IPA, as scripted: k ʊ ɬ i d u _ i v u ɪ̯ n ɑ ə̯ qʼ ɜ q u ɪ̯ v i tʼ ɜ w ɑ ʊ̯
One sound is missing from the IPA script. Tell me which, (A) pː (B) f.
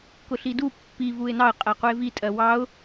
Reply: A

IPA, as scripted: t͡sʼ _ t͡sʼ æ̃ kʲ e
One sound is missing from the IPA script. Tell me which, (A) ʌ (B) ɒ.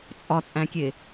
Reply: B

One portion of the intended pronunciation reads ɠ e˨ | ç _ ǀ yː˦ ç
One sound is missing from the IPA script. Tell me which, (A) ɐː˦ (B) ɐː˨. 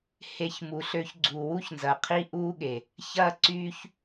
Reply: A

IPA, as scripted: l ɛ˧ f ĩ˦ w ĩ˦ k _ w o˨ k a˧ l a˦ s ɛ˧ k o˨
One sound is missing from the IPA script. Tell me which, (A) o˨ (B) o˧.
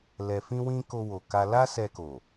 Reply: B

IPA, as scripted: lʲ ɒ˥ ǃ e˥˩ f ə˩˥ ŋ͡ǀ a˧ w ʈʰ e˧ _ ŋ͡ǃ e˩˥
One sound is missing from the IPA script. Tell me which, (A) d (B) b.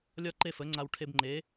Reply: B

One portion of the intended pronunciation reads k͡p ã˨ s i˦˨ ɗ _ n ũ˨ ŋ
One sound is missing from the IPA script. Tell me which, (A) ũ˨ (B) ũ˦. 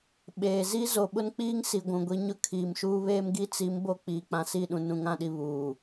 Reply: A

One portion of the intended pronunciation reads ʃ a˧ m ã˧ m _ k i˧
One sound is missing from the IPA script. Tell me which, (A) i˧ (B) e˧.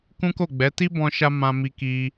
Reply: A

